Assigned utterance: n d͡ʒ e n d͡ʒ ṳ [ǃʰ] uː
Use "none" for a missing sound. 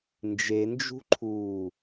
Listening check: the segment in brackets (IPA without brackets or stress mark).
ǃʰ